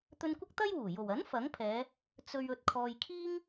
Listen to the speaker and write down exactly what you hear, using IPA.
t̪ ɵ˧ n kʷ ɐ˥ k̚ t̪ ɐ˥ j w uː˨˩ j o˨˩ w ɐ˨˥ n f ɐ˨˥ ŋ pʰ ɛː˨˧ | t͡s ɵ˨ ɥ ɵ˨ t̚ kʰ ɔː˨ j kʰ iː˥ ŋ

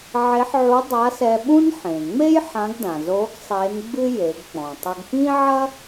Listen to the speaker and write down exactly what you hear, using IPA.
ʕ e˧˥ ħ ʕ u˧˥ dˤ a˧˥ s ɛ˧ ɓ ũ˥ n ħ ẽ˩ ŋ͡m e˥ j ħ ã˧˥ ɡ d ã˩ z o˧˥ ɡ sˤ e˧˥ n ɡ͡b ɨ˥ j e˩˧ ɡ k͡p ɔ̃˩ tˤ ɘ˧ ɡ p ĩ˥ ʕ ɐ˥

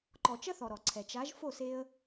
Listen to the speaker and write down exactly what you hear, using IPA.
ǃ ɔ˨ t͡ʃ ɐ˦ θ ɔ˨ ɾ ɔ˨ ǀʰ ɛ˨ t͡ʃ a˨˦ ʒ f o˦˨ s e˦ ə̯

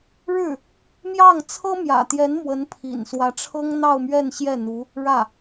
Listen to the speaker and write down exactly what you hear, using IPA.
ɻ ɻ̩˥˩ | m j ɑ˥˩ ŋ t͡sʰ ɤ˥ m j ä̰˨˩ t̪ j ɛ˧˥ n m w ə˧˥ n pʰ ḭ˨˩ n s w ä˧˥ ʈ͡ʂʰ ɤ˥ ŋ n̪ ɑ˥˧ ʊ̯ m ɥ ɛ˥˧ n ɕ j ɛ˥˩ n̪ u˧˥ | ɻ ä˥˩

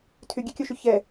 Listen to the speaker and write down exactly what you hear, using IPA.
tʰ y ɡʲ ɛ kʲ o ʃ y ç ɛ

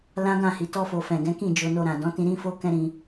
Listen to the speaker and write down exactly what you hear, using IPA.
l ã˦ ɡ ã˦˨ h i˨ t ɔ˧ f o˨ f ɛ̃˨ ɡ ɛ̃˨˦ k ĩ˦˨ d͡ʒ o˧ n o˧ ɾ ã˨ d ɔ̃˨˦ t ĩ˧ ɾ ĩ˦ f o˦ k ɛ̃˦ ɾ ĩ˧

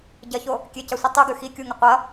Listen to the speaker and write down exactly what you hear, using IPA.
ɟ ɐ ç o | kʲ e c a sʷ i tˤ u ɡ ʉ x i kʲ u ŋ ɵ qʷ ɐ

